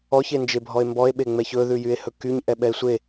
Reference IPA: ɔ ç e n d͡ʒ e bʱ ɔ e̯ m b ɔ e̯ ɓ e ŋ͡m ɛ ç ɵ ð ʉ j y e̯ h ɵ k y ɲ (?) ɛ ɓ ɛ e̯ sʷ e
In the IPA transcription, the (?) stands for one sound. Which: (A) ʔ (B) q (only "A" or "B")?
A